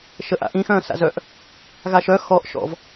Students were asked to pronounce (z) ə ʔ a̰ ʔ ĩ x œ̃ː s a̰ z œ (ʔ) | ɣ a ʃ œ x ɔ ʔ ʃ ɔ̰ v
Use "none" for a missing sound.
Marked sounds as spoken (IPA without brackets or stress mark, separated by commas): ʃ, ʔ